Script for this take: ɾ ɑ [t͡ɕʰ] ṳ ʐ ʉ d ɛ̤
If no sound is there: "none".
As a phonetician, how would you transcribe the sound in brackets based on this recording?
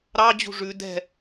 d͡ʑ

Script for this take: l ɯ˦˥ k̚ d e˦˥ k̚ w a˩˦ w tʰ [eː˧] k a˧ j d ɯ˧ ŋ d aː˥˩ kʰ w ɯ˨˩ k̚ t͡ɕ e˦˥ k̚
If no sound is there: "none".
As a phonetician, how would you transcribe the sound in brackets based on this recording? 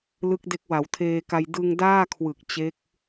eː˧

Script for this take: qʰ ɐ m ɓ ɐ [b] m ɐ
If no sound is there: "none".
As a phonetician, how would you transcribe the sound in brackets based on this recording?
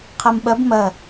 b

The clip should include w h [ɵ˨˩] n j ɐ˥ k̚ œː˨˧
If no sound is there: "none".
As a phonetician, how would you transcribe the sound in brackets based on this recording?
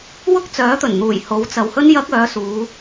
ɵ˥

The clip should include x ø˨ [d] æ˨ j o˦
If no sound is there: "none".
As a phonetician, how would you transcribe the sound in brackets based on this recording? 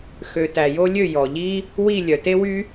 t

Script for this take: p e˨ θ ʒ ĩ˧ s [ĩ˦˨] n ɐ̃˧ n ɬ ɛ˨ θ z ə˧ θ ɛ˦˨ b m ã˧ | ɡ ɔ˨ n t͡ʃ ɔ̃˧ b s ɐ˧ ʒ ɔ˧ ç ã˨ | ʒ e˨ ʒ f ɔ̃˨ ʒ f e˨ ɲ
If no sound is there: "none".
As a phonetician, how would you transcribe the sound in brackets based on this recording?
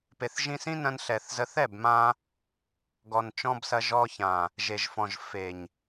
ĩ˦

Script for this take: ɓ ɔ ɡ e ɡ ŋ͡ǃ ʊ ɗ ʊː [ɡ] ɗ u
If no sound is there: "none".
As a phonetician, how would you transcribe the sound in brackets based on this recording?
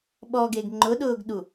ɡ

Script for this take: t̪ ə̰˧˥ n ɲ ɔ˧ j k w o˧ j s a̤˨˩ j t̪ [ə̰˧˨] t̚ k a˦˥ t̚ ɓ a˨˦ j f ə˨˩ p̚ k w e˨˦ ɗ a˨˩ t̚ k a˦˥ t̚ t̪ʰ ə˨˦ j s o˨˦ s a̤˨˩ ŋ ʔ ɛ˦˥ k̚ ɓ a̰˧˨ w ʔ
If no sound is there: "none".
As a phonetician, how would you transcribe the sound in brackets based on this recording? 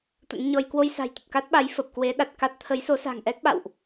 ə˨˩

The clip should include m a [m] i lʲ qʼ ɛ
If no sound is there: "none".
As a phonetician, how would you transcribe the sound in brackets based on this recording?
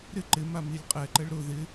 m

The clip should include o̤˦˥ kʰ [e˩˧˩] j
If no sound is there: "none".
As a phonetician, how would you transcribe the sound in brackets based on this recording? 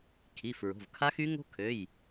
ø˩˧˩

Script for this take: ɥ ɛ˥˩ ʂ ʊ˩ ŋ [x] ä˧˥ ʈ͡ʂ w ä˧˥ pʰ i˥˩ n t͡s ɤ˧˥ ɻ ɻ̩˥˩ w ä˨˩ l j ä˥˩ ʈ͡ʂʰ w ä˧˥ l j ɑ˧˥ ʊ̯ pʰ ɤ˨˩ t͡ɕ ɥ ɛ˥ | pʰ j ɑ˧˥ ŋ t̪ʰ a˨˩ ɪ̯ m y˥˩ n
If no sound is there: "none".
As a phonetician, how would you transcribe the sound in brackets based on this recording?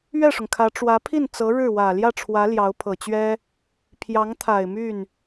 kʰ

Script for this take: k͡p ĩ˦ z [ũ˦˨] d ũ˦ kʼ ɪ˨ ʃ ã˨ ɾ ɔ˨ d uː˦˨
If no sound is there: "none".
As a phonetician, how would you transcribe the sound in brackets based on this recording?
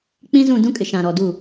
ũ˦˨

